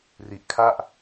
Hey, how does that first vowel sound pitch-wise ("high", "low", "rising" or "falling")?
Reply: low